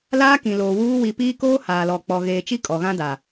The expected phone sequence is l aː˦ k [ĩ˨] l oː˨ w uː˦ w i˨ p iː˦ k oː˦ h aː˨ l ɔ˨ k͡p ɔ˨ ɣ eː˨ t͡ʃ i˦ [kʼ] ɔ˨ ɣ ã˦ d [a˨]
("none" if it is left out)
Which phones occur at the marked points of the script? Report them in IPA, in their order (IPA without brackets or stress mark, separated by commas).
ĩ˨, kʼ, a˨